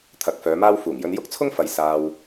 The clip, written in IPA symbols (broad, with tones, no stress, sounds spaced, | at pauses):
t̪ʰ ɐ˨˥ k̚ f œː˨˧ m aː˥ w f uː˨˩ ŋ j ɵ˧ n j ʊ˥ k̚ t͡sʰ ʊ˥ ŋ f ɐ˨ j s aː˧ w